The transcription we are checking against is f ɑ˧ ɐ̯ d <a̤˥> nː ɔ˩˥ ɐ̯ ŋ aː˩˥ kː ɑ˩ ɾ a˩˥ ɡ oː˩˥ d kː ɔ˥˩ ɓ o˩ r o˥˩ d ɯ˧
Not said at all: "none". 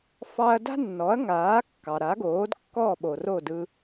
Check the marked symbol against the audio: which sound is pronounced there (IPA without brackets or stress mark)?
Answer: a̤˥